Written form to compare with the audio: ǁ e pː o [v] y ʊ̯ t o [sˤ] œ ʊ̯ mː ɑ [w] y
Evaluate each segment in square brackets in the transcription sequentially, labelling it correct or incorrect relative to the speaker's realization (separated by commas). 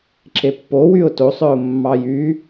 incorrect, correct, incorrect